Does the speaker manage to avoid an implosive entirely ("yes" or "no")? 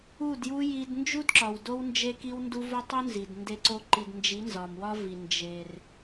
yes